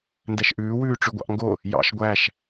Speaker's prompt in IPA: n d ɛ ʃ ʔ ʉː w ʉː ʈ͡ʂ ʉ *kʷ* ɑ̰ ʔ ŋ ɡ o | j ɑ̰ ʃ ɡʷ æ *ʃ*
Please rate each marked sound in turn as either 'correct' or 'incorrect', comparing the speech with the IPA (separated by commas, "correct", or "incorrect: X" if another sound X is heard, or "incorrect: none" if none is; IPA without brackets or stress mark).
incorrect: ɡʷ, correct